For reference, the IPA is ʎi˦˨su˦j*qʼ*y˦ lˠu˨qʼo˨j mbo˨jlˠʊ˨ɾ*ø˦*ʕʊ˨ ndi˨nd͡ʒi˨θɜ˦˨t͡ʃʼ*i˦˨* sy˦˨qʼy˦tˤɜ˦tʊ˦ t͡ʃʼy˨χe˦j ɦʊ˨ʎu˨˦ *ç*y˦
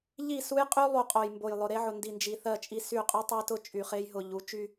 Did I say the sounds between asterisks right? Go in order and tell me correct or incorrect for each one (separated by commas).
correct, incorrect, correct, incorrect